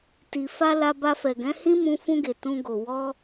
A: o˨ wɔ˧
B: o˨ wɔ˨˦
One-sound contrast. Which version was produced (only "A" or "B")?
A